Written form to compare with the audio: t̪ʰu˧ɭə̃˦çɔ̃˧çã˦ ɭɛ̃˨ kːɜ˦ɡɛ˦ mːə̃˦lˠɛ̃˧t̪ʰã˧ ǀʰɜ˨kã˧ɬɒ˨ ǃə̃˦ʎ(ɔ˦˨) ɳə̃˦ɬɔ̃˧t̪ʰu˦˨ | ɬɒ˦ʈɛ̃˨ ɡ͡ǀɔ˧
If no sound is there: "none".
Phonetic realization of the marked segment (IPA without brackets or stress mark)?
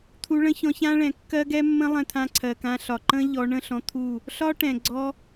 ɔ˧